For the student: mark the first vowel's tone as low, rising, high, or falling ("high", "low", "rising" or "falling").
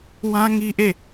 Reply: high